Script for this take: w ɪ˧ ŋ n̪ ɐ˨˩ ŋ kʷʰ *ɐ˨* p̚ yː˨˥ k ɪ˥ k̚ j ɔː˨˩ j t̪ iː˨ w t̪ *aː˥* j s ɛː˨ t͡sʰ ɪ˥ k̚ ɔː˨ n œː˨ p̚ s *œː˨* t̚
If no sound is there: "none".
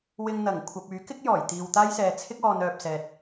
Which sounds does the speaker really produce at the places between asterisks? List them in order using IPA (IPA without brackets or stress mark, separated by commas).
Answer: ɐ˨, aː˥, ɛː˨